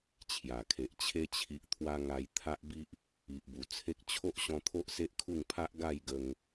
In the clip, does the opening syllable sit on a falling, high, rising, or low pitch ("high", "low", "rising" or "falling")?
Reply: low